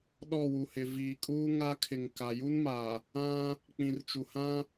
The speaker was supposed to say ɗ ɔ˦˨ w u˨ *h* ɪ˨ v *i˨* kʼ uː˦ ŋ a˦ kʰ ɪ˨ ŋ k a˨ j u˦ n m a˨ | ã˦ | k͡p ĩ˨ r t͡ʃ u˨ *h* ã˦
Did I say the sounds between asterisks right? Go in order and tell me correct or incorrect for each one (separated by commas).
correct, incorrect, correct